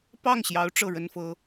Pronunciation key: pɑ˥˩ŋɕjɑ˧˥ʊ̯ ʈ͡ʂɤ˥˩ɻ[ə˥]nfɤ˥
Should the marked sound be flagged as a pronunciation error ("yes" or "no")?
no